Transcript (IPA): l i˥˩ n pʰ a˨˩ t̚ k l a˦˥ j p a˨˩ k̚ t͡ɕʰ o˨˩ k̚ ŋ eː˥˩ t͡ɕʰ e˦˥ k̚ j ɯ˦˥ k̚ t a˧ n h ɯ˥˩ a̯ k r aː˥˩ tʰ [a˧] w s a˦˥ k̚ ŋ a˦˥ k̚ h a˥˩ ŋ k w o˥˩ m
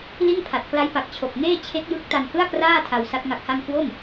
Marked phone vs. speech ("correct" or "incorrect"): correct